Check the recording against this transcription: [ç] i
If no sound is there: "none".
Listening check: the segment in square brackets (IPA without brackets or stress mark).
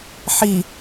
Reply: ħ